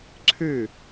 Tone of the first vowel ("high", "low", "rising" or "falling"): falling